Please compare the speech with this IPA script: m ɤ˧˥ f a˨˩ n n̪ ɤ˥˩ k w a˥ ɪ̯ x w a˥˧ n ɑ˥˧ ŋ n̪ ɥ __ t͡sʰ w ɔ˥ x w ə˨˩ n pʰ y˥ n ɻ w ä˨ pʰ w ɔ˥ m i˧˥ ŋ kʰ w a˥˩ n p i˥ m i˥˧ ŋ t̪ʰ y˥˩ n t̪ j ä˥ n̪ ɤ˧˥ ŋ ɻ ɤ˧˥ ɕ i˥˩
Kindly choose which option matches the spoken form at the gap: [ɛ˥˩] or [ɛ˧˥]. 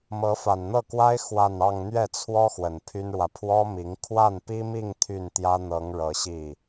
ɛ˥˩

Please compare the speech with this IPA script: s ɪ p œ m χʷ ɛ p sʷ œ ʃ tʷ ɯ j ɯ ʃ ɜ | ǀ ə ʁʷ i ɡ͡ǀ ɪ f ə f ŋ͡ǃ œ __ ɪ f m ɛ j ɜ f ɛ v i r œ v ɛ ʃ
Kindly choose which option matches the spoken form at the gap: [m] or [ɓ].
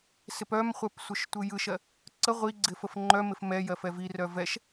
m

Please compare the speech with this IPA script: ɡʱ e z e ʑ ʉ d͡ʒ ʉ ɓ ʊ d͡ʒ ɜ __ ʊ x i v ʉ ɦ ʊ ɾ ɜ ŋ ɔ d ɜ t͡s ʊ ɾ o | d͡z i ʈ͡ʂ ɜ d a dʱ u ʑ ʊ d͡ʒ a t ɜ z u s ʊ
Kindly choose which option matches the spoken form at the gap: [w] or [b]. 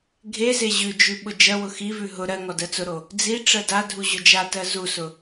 w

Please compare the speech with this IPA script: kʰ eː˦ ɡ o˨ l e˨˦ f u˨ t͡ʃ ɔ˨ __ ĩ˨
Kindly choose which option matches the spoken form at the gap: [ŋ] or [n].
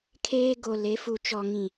ŋ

